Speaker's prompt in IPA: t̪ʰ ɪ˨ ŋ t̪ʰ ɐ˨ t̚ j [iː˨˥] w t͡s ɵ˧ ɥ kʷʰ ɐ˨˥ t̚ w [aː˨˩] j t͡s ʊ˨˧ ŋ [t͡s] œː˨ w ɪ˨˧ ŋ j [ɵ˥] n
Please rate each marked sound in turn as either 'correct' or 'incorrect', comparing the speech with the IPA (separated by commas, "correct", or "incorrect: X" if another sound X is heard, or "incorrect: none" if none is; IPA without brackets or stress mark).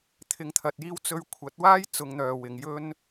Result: incorrect: iː˧, incorrect: aː˥, incorrect: n̪, correct